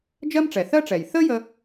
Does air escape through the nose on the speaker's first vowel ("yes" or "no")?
no